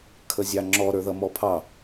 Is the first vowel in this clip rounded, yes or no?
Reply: no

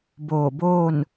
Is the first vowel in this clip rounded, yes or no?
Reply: yes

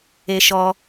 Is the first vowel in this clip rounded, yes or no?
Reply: no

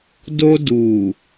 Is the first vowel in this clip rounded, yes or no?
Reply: yes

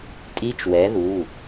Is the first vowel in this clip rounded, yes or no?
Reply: no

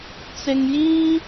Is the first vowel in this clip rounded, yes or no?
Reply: no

